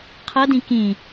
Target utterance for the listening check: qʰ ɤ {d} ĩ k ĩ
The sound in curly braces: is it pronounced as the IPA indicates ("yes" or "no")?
yes